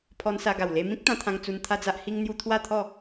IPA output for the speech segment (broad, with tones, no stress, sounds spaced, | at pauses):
pʰ ɔ˧ n s a˧ ɡ a˨˩ w l e˧ m ĩ˦ k̚ t̪ ã˧ t̪ʰ ã˧ ŋ t͡s u˧ n t̪ʰ a˦ d͡z a˦ ʔ h i˦ ŋ n̪ j u˦ t̪ʰ w a˥˧ t̪ʰ ɔ˥˧